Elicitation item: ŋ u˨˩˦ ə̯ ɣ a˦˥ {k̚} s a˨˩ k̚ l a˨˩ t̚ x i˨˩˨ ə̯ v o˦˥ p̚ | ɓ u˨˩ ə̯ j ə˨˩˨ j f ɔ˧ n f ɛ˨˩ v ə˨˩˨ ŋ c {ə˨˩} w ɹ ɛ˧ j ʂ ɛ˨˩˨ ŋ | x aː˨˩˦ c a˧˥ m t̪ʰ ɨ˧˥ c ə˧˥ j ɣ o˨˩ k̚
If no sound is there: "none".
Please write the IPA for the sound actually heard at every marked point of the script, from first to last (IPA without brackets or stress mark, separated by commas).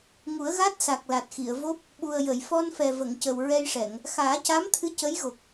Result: t̚, ə˨˩